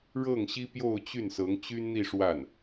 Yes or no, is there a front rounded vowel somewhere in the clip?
yes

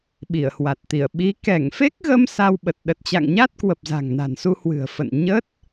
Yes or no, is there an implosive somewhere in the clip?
yes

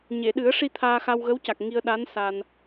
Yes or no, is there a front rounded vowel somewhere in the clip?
no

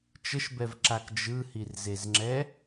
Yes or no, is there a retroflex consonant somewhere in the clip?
no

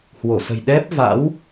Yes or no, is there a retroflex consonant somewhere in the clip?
no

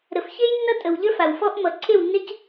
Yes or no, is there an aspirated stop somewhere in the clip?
yes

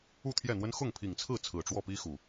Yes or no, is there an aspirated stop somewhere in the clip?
yes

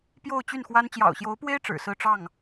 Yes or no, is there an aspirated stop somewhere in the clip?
no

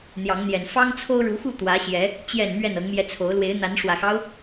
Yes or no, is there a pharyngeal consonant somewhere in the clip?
no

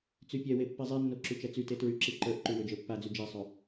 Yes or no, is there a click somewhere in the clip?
yes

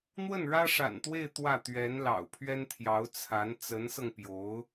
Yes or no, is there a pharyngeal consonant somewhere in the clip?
no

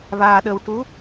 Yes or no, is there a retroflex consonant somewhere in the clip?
yes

